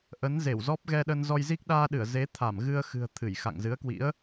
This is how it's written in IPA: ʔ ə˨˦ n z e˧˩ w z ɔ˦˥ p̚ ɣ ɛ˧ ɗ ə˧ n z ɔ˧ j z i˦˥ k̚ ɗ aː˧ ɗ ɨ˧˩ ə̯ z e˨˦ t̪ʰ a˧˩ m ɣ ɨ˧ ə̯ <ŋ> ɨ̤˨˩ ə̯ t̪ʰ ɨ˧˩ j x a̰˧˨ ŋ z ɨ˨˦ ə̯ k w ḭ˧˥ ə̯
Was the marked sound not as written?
yes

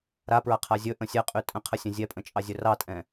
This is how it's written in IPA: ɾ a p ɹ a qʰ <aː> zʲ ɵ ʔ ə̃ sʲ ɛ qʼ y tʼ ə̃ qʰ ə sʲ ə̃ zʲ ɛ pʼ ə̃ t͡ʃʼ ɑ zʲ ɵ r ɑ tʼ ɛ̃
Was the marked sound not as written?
yes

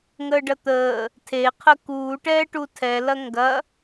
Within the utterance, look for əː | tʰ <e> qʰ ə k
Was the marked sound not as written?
no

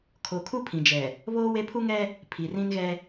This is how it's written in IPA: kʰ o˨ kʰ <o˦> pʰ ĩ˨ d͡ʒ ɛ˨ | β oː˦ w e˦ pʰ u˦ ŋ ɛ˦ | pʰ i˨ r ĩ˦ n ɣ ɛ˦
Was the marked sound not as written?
yes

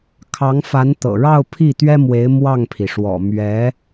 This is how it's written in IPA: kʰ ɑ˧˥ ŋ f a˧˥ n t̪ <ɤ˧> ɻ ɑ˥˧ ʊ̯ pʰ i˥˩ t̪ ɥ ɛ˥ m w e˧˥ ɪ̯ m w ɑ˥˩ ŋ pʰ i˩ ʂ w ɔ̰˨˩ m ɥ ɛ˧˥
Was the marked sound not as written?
yes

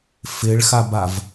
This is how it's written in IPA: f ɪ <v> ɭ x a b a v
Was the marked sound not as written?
yes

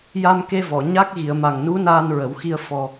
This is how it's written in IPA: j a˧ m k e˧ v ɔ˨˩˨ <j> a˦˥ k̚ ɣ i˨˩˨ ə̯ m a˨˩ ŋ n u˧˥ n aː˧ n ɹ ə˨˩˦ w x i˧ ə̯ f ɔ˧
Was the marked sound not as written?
yes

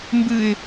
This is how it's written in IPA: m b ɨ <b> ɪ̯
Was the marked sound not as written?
yes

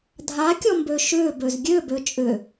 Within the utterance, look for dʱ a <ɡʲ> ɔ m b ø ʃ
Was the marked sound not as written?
yes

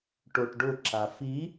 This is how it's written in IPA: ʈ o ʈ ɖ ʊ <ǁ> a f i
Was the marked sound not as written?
no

